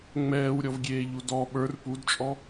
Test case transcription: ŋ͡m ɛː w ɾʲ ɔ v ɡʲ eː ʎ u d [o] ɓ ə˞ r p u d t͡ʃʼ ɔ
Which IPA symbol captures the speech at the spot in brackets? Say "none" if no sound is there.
ɔ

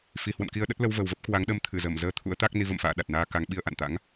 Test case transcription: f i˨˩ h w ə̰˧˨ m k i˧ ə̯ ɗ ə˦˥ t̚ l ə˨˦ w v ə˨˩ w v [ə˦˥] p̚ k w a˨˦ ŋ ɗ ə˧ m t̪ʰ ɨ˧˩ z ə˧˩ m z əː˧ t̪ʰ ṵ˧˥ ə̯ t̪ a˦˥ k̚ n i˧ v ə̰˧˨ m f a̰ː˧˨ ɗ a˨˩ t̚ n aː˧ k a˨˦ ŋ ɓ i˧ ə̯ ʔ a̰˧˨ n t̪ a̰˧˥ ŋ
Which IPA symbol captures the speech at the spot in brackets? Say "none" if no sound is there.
ə˦˥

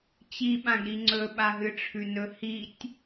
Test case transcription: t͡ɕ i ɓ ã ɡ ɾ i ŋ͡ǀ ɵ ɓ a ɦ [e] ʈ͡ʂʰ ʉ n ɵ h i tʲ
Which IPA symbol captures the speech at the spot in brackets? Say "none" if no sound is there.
ɨ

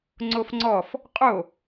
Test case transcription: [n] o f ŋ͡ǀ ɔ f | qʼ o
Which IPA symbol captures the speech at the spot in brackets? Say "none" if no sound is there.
ŋ͡ǀ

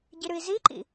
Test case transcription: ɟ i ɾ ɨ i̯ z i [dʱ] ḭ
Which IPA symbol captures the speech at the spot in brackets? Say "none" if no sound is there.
ǃ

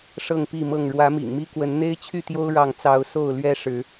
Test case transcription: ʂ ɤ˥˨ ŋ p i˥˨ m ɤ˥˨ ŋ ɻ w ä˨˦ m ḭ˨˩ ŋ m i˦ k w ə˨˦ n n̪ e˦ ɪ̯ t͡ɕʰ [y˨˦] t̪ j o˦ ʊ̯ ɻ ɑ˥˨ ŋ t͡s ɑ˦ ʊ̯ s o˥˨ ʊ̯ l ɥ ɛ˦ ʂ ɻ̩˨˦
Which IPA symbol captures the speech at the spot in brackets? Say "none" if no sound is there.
y˥˨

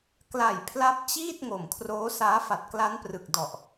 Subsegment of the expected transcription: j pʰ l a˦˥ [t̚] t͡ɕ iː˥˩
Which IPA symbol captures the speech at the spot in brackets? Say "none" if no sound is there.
p̚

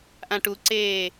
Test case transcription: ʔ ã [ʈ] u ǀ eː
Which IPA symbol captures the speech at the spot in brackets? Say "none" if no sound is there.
ʈ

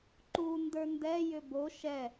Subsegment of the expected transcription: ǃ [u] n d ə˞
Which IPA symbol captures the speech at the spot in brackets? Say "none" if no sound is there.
u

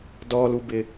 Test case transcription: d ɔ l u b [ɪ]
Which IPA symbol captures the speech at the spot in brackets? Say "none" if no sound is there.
ɪ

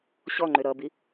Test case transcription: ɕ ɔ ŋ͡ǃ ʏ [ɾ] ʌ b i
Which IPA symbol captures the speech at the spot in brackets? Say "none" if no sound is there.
ɾ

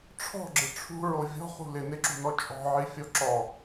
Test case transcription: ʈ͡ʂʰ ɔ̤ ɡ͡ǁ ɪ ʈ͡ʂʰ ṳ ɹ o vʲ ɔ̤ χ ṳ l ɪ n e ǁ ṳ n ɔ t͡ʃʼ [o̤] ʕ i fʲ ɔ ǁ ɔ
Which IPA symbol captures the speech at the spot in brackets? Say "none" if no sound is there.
ɔ̤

